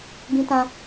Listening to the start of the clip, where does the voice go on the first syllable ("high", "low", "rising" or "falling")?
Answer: high